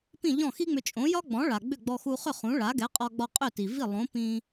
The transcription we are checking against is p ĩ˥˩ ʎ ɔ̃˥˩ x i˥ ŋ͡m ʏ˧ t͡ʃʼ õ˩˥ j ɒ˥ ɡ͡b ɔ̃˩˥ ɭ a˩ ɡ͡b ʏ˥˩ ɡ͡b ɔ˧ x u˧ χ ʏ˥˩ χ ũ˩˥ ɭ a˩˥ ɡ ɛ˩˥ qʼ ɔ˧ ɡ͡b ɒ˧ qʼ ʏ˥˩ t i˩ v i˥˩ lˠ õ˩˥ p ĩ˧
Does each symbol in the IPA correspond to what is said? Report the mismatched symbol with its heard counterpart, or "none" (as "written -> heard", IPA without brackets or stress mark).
none